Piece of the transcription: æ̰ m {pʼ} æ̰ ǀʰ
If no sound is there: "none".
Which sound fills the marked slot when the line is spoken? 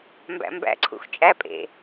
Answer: b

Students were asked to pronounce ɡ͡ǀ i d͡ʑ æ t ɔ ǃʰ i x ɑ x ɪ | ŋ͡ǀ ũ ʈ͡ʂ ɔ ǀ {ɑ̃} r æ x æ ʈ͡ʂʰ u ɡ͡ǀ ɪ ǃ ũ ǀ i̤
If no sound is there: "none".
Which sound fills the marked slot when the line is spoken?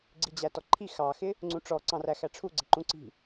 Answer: ɑ̃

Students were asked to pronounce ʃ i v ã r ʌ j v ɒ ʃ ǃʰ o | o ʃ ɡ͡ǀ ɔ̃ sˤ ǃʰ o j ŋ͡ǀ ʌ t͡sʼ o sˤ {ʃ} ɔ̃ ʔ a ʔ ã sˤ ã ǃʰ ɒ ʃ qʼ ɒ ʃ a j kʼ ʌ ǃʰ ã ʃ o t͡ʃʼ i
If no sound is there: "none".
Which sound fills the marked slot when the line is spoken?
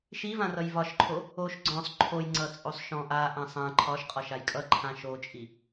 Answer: ʃ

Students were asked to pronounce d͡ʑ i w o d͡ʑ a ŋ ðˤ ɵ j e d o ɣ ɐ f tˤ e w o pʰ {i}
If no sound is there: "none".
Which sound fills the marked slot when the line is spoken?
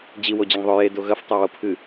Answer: ɨ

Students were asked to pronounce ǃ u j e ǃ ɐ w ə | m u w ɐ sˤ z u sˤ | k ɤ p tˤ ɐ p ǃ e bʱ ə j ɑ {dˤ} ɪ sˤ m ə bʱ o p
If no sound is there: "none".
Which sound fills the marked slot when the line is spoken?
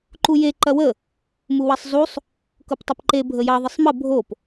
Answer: ðˤ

